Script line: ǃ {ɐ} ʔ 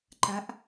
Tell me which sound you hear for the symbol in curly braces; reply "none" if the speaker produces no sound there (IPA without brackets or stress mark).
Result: a